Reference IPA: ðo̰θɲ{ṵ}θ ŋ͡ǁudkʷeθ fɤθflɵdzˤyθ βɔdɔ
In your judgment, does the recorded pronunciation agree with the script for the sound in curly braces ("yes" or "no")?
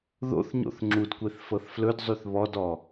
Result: no